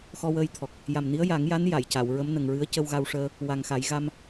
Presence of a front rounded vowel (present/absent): absent